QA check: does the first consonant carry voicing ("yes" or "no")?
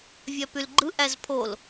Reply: yes